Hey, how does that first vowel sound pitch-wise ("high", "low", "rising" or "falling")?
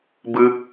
high